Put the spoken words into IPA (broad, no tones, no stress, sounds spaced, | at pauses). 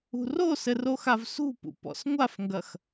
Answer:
ṳ r o s ɘ r o x a v s ṳ p ṵ p ɔ̰ s ŋʷ a f ŋ ɡ ɐ x